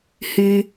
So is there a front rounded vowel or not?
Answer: yes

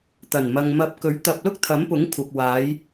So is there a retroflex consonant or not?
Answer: no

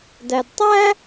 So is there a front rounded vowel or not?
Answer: no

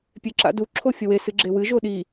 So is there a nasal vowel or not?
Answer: no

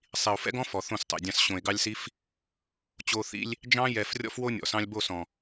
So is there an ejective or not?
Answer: no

